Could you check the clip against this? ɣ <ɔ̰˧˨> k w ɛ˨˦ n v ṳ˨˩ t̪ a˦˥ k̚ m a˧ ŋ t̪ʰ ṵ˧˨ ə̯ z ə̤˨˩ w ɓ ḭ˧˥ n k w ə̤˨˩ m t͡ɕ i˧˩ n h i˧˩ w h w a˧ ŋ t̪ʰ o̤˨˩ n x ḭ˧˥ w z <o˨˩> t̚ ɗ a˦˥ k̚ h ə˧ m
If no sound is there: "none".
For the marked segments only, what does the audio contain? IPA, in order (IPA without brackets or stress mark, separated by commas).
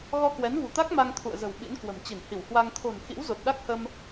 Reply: ɔ˧, o˨˩